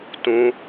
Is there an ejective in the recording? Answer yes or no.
no